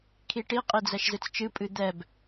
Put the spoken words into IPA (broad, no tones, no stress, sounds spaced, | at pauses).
kʰ i ʈ i qʼ i d͡z ɛ ʃ z ɨ t͡s t͡ʃ ɨ pʼ ɨ d̪ ɛ b